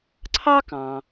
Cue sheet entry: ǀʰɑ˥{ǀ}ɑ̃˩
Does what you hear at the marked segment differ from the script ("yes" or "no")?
yes